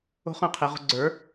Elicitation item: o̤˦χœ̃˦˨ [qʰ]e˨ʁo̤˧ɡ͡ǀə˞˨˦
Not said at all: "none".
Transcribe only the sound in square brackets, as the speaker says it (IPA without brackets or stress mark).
qʰ